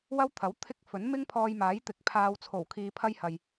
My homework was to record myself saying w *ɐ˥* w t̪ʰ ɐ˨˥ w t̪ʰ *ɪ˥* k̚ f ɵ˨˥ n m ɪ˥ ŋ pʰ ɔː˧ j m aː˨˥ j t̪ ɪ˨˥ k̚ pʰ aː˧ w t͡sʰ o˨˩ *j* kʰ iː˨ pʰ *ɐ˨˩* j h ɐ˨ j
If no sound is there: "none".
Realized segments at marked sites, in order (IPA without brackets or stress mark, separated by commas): ɐ˥, ɪ˥, w, ɐ˥